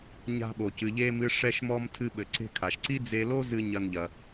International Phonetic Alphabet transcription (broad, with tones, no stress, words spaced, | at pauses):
ɲa̤˧ɓo˩cɨ˩ʎeː˧m ɨ˧ʂɛ˧ʃmɔ˧m tʰɨ˧ɓɘ˩ǀe̤˧ kʰa˩ʃǀi˥ d͡ze˧lo˥zɨ˧ ɲɐ˧nʎɐ˩